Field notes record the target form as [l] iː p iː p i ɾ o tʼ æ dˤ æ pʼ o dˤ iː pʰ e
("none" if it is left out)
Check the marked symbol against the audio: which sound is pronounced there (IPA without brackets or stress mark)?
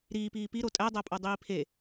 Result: ɾ